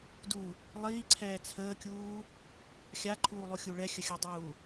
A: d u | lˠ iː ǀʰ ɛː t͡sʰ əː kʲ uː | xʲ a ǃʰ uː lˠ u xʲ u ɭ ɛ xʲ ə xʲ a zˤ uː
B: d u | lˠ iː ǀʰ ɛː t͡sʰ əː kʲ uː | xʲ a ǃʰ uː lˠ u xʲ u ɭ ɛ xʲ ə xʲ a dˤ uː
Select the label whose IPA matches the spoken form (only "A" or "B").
B